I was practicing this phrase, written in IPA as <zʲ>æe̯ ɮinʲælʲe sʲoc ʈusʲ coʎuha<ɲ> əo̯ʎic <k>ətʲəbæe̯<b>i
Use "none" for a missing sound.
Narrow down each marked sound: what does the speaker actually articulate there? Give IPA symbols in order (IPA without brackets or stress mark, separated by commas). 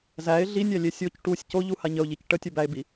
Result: z, ɲ, ʈ, b